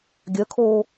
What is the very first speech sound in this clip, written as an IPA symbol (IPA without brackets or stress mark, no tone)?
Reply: ɡʲ